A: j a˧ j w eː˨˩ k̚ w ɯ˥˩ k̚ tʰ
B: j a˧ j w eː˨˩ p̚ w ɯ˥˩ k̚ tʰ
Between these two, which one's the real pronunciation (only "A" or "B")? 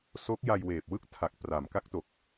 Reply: B